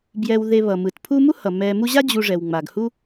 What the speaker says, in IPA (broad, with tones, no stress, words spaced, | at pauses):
bjɛ˨wðe˨βʌ˩mɯ˩t pʰu˦mu˥hʌ˩ mɛ˨ mu˦ʑa˥ d͡ʑu˨ ʐɛ˩wŋ͡ma˩ɡhu˥